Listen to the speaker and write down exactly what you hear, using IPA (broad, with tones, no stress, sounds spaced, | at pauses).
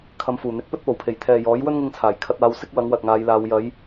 kʰ ɐ˨˧ m f uː˨˩ n̪ ɪ˨˥ k̚ p ɵ˥ t̚ p o˨˩ w pʰ e˨˩ j t̪ʰ ɛː˨ j ɔː˨˥ j w ɵ˥ n ŋ ɪ˧ ŋ t͡sʰ aː˨˩ j kʰ ɐ˧ t̚ aː˨˧ w s ɪ˥ k̚ w ɐ˨˥ ŋ w ɐ˨ t̚ ŋ aː˨˧ j l aː˨˧ w j ɐ˨˧ j